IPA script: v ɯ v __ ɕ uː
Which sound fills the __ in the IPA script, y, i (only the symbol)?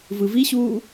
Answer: i